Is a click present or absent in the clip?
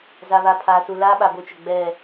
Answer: absent